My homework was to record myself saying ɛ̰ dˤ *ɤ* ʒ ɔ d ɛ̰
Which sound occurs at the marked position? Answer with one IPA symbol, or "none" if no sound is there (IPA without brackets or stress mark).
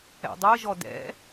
ɤ